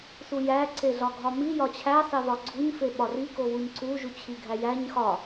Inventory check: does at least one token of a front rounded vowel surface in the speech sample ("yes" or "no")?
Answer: no